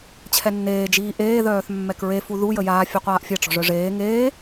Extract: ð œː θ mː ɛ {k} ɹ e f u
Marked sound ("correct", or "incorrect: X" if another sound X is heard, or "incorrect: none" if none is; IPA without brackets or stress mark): correct